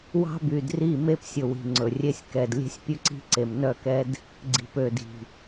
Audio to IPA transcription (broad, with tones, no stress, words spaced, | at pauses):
wɑ̤˦by˨dri˦˨ me˦psʲɵ˨wi̤˨ ŋ͡ǀɵ˨rʲe˦sʲ kɛ˨d lʲe̤˦sʲpʲʉ˦ǀi̤˦ǀe˨m nœ˦˨kɛ˦d | ɡ͡ǀi̤˨pø˨di̤˨